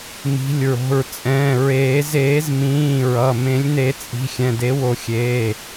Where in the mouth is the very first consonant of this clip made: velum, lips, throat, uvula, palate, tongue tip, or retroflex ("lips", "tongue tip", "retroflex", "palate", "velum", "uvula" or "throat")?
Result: lips